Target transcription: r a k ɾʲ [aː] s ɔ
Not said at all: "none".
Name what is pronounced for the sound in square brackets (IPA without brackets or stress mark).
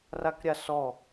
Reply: a